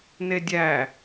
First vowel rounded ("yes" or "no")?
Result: no